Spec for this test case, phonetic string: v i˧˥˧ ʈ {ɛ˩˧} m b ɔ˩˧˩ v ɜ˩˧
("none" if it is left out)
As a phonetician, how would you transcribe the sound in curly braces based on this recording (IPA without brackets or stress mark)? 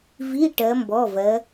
ɜ˩˧